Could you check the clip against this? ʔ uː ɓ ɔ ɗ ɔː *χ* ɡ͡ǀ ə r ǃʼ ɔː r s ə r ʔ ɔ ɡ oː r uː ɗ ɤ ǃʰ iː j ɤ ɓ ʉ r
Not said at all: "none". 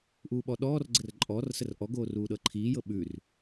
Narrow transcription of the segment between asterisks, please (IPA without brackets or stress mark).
r